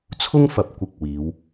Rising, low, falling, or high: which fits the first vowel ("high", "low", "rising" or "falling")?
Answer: high